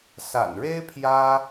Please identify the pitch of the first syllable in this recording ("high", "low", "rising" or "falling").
low